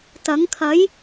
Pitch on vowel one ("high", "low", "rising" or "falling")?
rising